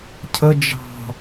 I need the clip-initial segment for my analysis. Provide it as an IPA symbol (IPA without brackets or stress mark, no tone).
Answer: cʰ